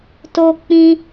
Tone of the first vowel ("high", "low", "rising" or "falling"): high